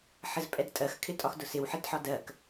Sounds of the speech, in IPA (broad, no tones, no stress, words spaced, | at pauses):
ħəzpʼɛdtʼɜx kʰɪtʼɒxdʊsɪw ħɪdħɒdɜk